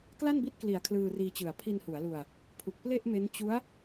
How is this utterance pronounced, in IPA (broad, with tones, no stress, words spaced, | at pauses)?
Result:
kla˥˩nbi˦˥t̚kli˩˦a̯ kʰlɯː˧riː˧t͡ɕɯ˨˩a̯ pʰi˧nhu˩˦a̯lu˧a̯ | pʰu˨˩k̚ple˥˩ʔme˦˥n t͡ɕu˦˥a̯